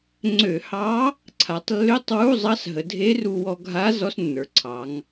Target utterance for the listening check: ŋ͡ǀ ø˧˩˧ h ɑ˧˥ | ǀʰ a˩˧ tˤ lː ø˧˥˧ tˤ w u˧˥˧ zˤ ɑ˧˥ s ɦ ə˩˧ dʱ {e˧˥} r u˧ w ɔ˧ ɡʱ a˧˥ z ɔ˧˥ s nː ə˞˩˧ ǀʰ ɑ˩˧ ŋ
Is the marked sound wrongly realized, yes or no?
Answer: no